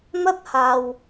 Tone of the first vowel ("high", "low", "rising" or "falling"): high